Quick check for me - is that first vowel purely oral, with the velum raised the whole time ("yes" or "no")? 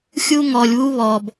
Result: yes